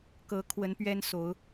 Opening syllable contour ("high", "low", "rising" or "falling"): rising